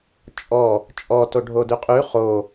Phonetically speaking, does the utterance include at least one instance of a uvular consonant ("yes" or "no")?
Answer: yes